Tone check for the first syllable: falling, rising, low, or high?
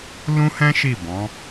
high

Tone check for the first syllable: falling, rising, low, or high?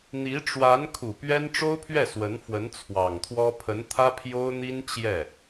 rising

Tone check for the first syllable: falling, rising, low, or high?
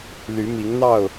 rising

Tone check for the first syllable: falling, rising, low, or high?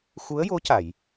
rising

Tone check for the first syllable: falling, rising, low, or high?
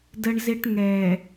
high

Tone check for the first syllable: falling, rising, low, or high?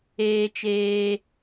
high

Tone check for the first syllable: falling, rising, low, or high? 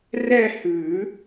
falling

